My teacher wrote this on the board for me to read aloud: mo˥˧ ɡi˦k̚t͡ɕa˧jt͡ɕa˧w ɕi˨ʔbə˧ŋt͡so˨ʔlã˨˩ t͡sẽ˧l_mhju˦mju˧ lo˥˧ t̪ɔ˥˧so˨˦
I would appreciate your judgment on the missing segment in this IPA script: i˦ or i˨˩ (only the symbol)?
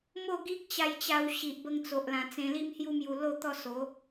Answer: i˦